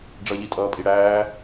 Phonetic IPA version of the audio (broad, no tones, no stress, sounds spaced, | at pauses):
ɖ͡ʐ ʌ ʎ i tʼ ʌː pʼ i ɽ æː